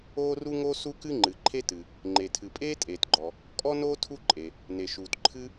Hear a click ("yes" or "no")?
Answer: yes